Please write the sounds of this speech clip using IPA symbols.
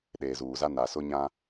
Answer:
ɗeː˨zuː˨za˦ na˨sʊ˦ɲã˦

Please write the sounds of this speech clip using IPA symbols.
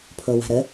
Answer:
pʰowa̤ɾə

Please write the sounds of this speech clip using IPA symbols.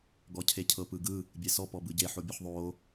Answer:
ɡɔcʰecʰɤp ɯɡɯ | bʲesɔ pɔbɯɟe ħobʲoħðˤo

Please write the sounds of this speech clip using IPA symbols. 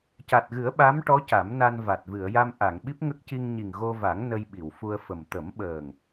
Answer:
ca˨˩t̚ɣɨ˨˩˦ə̯ ɓa˧˥mʈɔ˧˥ ca˨˩˦mna˧nva˨˩t̚ vɨ˨˩˨ə̯ja˧m ʔa˨˩˨ŋɓi˦˥p̚ŋə˦˥k̚ci˧ŋ ɲi˨˩ŋɣo˧va˨˩˦ŋ nə˧jɓi˨˩˨wfu˧ə̯fə˨˩m t̪ə˨˩˦mɓəː˨˩ŋ

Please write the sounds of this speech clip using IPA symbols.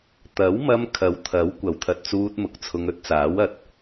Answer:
t̪ɐ˨˥wmɐ˧m kʰɐ˨wt̪ʰɐ˨˥w kʷɐ˨˩wt̪ʰɐ˧t̚t͡suː˧t̚ mʊ˨˥k̚t͡sʰʊ˧ŋ ɵ˥t̚t͡saː˨˥w ɐ˨t̚

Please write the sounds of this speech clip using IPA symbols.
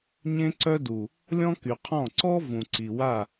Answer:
ɲẽ˦ǀœ˦du˨ | lʲɔ̃˦ky˨qʰɔ̃˦˨ ǀɔ˦ vũ˨ǀi˨wa˦˨

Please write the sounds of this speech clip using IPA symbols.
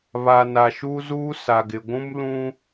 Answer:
βa˨ na˨ʃu˦zuː˦ sa˨ɡɪ˨ɡʷũ˦m lũ˦

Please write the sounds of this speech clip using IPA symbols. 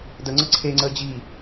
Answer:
dəŋ͡ǀə ǀʰeŋ͡ǀə d͡ʑi

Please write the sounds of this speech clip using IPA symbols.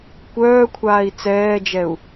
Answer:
kʷœːkʷʰaːi̯ t͡sɛːd͡ʒɛu̯

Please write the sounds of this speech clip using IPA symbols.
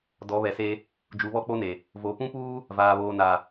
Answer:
dɔ˨˦βɛ˨se˦ | d͡ʒu˨˦βɔ˦k͡po˦ne˨ | vo˨˦ pũ˦puː˦ | vaː˨ βoː˨ na˨

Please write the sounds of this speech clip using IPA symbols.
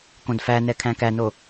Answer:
kõdfænɛ kʰæ̃kæno

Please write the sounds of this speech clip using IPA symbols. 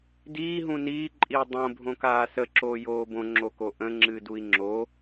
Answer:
diː ɦũniː ǃʼiu̯dˤõ bʱõkaːsə ǁoːjoːbõ ŋ͡ǁokoʔə̃ ŋ͡ǁɨːdui̯ŋ͡ǁo

